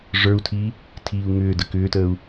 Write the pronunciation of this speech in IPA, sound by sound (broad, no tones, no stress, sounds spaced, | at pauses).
ʐ ə˞ u̯ tʰ iː | tʰ iː u̯ ŋ ʏː d ə k ʏː t əː u̯